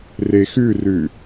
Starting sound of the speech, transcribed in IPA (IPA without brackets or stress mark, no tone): r